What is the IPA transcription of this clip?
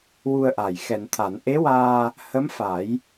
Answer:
w u˧ ə̯ ʔ aː˨˩ j x ɛ˨˩˨ n t̪ʰ a˨˩˨ n ʔ e˧˥ w aː˧ | h ə˧˥ m f a˨˩˦ j

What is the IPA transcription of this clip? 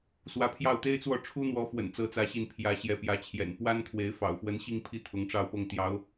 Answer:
s w ä˧˥ pʰ j ɑ˥˩ ʊ̯ t̪ e˥ ɪ̯ t͡s w ɔ˥˩ ʈ͡ʂʰ u˥ n̪ w ɔ˧˥ f w ə̰˨˩ n t͡s ɤ˥ t͡s ä˥ ɕ i˥˩ n pʰ j ä˧˥ ɕ j ɛ˧˥ p j ä˧˥ t͡ɕʰ j ɛ̰˨˩ n p w a˥ n kʰ w e˧˥ ɪ̯ f ɑ̰˨˩ ʊ̯ f w ə˧˥ n ɕ i˥˧ ŋ pʰ i˥˩ t̪ʰ ʊ˧˥ ŋ ʈ͡ʂ ɑ˥˧ ʊ̯ p ɤ˥˩ ŋ t̪ j ɑ˧˥ ʊ̯

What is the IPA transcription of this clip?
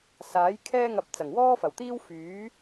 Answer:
s aː˨˥ j kʰ ɛː˥ ŋ ɐ˧ p̚ t͡s ɐ˨˩ ŋ w ɔː˥ f ɐ˨˩ w t̪ iː˥ w f yː˨˥

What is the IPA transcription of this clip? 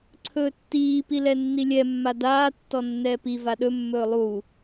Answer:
ǀʰ ɵː tː iː p i l ɛ nː i lʲ ɛ mː a d aː tː ɔ nː ɛː p i v a ɗ ɵ mː ɵː lˠ u

